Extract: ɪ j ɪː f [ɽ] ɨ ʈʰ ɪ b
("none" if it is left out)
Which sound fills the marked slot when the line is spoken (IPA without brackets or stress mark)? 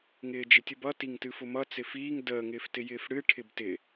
ɽ